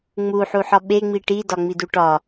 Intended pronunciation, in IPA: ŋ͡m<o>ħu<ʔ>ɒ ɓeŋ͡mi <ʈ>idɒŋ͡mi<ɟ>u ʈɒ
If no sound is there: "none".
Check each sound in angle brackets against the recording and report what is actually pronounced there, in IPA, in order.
u, ħ, ʈ, d

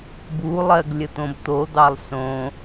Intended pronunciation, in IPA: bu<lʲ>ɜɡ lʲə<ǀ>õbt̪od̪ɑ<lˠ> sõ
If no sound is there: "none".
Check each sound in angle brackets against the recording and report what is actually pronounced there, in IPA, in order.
lˠ, t̪, lˠ

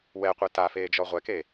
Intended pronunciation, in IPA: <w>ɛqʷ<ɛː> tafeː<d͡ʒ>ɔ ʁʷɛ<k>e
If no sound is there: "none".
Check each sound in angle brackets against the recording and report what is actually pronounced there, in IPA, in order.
w, ɛ, d͡ʒ, k

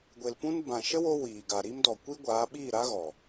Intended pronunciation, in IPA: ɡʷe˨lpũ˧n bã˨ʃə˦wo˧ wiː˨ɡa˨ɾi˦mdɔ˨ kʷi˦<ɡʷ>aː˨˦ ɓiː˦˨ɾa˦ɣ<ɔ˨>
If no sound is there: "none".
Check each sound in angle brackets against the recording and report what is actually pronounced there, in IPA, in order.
ɡʷ, ɔ˨

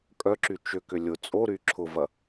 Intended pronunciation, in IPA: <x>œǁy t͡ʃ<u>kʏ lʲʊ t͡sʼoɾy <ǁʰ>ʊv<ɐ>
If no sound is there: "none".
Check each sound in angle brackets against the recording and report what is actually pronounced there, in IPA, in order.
kʼ, ʏ, ǁʰ, ɐ

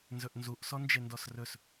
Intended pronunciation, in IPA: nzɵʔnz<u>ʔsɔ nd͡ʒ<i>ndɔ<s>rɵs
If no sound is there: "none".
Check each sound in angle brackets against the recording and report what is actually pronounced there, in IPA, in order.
u, e, s

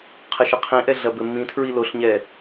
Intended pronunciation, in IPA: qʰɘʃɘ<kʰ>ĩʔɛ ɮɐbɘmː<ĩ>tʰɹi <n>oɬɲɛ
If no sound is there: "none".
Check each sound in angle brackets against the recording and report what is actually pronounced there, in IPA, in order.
qʰ, ĩ, l

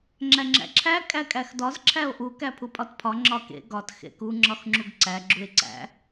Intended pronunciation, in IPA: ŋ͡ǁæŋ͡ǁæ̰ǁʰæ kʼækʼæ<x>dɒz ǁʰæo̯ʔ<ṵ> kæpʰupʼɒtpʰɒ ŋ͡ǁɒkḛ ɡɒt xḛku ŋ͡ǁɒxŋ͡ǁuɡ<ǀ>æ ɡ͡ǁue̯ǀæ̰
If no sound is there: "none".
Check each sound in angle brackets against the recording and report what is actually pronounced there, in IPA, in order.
x, u, ǀ

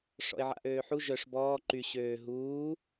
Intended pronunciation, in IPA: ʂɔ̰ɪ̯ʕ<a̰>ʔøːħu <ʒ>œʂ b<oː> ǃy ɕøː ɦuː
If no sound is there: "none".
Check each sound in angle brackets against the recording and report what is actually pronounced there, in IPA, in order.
a̰, ʒ, ɔː

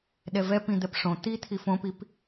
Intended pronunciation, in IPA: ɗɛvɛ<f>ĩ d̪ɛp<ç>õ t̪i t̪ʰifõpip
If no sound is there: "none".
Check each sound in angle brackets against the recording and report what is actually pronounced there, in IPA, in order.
p, ʂ

